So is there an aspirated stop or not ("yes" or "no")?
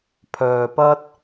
yes